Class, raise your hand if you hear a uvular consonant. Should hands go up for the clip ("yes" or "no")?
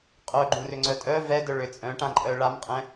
yes